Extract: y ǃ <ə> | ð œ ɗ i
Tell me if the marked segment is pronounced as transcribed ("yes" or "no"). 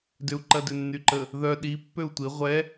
yes